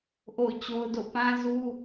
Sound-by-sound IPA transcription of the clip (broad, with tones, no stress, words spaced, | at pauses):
ʔo̰˦˨ʊ̯t͡ɕo˦ʊ̯do̰˦˨ pã˦zu˦